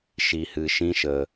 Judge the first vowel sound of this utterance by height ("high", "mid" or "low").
high